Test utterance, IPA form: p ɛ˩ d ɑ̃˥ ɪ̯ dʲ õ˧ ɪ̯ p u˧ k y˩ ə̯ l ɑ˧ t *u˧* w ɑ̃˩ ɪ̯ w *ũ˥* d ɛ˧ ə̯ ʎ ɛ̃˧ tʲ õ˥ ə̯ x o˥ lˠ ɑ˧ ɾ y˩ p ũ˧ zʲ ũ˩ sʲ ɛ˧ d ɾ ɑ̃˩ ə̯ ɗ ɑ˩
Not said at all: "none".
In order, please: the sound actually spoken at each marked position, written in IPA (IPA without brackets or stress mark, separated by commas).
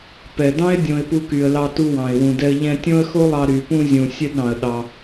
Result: u˧, ũ˩